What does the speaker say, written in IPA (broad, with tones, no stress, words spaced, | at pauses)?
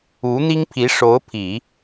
u˧˥n̪i˥ŋpʰi˧˥ʂo˧˥ʊ̯ pʰi˨˩˦